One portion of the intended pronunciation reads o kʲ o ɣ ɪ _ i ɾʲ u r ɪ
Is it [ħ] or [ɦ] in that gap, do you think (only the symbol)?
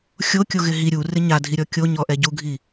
ɦ